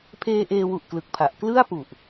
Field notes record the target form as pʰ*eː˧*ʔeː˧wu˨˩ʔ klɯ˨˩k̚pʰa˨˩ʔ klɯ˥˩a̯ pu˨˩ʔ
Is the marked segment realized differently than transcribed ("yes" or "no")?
no